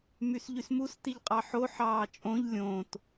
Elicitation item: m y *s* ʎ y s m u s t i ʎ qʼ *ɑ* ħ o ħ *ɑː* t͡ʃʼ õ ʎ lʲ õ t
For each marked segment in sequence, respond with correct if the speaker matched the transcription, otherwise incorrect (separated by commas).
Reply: correct, correct, correct